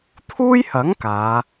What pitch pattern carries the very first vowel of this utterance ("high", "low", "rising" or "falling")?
high